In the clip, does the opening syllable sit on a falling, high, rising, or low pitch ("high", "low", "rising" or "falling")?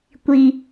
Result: high